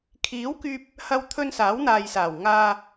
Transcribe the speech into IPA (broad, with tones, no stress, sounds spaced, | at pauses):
kʰ iː˨˥ w k yː˧ p̚ | h ɐ˧ w t̪ʰ ɵ˧ n s aː˨˥ w n̪ aː˨ j s aː˨˩ w ŋ aː˧